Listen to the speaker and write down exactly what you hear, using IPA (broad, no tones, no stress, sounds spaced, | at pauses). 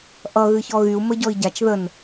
ʔ ʌ ɣ ɨ ç ɔ ɣ y u̯ m ə ɟ ɔ i̯ ɟ a t͡ʃ ð ə n